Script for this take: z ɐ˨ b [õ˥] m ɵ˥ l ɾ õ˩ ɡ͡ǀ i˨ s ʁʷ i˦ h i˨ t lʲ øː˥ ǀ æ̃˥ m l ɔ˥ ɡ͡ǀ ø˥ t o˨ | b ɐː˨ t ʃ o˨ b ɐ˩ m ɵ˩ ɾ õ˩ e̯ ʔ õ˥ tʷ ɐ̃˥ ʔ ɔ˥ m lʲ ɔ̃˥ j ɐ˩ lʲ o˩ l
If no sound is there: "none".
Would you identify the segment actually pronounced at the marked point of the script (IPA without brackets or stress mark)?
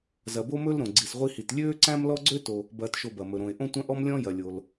o˥